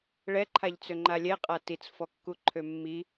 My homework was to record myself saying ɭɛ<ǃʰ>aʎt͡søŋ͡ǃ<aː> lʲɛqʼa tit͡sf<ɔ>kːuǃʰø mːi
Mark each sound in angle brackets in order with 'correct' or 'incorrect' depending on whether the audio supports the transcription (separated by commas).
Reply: correct, incorrect, correct